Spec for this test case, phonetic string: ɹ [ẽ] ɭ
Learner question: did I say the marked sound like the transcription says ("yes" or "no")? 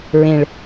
yes